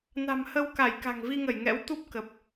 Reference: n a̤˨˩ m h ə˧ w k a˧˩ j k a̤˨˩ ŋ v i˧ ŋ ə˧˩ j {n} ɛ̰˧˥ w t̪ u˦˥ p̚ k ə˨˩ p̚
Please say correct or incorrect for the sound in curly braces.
incorrect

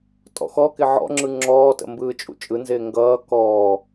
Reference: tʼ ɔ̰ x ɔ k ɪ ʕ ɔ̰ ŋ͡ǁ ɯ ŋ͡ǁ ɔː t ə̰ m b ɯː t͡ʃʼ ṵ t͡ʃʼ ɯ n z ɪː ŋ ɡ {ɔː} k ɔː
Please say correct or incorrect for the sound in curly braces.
incorrect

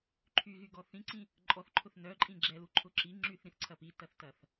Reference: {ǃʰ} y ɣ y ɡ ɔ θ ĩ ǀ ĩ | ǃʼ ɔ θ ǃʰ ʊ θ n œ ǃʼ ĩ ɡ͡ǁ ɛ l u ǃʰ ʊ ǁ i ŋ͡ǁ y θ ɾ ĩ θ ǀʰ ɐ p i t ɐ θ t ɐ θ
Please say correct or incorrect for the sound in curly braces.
correct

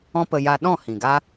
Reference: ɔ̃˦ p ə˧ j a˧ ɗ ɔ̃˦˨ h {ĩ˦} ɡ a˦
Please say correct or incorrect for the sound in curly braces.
incorrect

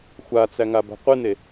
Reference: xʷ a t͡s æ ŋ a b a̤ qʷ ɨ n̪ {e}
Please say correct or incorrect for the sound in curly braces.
correct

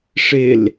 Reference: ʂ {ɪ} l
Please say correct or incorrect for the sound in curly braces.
correct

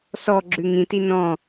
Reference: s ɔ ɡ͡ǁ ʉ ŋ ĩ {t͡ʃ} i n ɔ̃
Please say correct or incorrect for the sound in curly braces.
incorrect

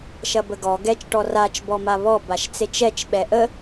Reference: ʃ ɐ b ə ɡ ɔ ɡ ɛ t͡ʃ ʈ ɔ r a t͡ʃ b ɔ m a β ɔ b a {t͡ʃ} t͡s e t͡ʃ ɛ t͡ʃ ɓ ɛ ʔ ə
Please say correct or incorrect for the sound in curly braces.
incorrect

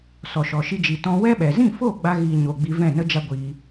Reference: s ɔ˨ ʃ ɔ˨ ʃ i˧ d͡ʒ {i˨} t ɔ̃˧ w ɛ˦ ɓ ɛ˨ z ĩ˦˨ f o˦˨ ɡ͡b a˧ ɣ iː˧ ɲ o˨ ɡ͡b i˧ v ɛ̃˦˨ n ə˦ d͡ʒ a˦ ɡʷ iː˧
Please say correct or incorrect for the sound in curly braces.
correct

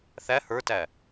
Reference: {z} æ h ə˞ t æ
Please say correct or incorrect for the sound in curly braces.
incorrect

